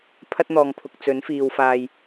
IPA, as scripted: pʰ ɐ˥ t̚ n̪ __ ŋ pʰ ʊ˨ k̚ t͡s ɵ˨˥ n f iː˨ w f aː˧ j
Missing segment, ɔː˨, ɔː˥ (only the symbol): ɔː˨